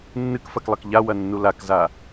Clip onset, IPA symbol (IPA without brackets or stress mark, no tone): nː